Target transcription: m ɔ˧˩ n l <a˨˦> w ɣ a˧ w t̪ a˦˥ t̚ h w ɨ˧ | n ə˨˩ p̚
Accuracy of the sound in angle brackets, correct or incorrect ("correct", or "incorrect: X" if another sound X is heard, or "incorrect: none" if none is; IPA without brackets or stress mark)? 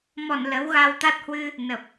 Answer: incorrect: ə˨˦